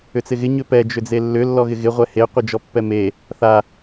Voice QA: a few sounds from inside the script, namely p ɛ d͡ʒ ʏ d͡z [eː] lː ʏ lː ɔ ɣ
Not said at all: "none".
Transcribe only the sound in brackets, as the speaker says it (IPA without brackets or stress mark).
e